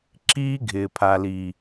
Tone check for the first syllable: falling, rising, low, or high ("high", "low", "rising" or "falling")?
high